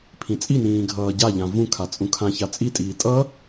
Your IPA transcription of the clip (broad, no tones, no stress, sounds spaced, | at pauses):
pʰ ĩ t͡sʼ i n ĩː ɡʱ ʌː ɟ a ʎ ã v ũ kʰ a t͡sʼ ũ kʰ ã ç a t͡sʼ i tʼ iː tʼ ʌ